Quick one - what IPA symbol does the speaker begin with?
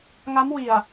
ŋ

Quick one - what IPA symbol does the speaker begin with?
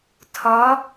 tʰ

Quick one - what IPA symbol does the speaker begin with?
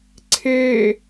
ǀʰ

